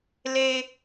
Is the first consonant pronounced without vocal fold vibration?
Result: no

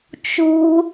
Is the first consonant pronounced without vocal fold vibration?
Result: yes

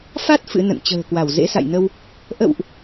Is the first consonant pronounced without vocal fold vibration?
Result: yes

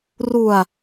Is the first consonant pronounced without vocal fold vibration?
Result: no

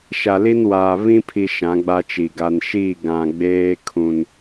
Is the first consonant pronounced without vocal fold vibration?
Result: yes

